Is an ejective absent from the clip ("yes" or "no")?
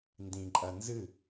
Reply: no